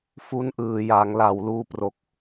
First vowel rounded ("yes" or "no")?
yes